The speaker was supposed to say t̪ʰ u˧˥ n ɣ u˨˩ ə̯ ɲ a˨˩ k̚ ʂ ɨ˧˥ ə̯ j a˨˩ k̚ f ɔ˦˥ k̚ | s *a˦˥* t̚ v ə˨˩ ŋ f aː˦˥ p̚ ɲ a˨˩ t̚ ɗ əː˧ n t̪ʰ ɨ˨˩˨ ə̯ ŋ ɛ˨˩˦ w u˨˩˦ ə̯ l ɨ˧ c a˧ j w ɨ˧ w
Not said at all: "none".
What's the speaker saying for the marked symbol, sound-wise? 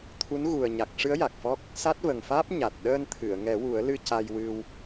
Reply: a˦˥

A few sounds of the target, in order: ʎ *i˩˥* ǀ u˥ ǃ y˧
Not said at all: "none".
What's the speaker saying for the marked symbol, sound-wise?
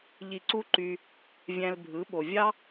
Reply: i˧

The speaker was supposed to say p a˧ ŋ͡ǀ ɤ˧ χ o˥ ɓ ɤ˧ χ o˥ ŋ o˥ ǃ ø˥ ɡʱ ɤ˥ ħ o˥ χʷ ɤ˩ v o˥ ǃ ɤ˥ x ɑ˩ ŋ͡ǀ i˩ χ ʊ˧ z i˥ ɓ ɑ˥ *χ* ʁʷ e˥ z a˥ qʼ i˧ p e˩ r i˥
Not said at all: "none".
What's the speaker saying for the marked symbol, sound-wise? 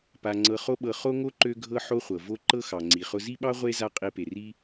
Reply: none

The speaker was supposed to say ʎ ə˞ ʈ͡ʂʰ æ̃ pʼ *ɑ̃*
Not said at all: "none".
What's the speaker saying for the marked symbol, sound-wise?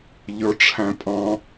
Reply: ɑ̃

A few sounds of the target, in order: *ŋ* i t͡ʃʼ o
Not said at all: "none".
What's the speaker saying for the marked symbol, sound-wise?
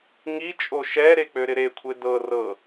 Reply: ŋ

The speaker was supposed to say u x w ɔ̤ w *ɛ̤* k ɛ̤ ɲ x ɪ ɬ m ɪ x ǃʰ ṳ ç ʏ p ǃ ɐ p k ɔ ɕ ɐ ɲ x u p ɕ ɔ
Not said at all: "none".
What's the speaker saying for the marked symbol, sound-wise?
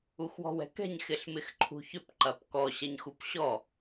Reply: ɛ̤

